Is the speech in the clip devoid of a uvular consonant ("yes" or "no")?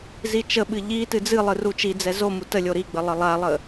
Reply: yes